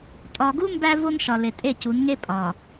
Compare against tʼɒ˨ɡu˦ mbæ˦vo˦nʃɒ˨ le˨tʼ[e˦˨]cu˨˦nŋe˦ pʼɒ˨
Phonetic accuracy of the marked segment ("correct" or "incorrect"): correct